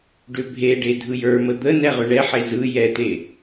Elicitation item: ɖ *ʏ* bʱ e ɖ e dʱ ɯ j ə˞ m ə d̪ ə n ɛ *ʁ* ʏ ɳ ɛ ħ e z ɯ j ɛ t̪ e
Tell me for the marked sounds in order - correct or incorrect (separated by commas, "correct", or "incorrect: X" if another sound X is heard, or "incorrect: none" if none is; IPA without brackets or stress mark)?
correct, correct